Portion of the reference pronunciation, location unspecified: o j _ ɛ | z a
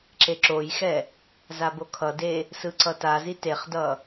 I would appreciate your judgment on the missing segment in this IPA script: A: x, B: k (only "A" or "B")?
A